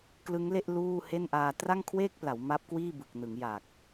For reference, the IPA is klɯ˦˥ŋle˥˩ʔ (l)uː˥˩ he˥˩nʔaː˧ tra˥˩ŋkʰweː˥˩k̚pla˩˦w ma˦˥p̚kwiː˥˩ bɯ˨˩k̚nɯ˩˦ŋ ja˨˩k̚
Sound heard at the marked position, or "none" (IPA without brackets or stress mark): l